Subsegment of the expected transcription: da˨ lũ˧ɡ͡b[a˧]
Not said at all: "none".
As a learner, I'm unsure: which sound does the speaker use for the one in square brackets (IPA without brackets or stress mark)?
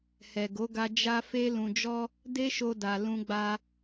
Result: a˧